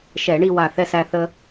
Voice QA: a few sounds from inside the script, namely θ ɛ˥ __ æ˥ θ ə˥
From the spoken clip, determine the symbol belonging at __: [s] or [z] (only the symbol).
s